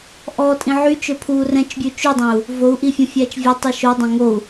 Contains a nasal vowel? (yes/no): yes